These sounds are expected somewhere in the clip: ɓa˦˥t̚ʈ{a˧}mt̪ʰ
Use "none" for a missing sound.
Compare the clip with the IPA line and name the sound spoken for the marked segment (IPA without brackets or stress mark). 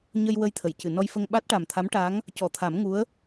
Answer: a˨˩